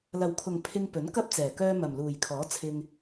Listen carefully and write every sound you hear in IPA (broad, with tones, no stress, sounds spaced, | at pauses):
l ɐ˨˩ w kʰ ʊ˨˩ ŋ pʰ ɪ˧ ŋ p ɵ˨˥ n k ɐ˥ p̚ t͡s ɛː˨˩ k œː˧ m ɐ˨˩ m l uː˨˩ j kʰ ɔː˨˥ t͡sʰ ɪ˧ ŋ